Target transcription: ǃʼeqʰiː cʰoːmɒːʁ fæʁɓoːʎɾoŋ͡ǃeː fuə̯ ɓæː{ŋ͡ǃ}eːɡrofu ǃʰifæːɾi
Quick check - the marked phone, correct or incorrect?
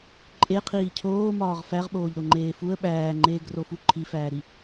correct